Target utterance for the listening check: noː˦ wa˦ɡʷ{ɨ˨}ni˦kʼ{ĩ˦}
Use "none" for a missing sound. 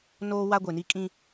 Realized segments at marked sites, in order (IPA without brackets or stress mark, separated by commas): e˨, ĩ˦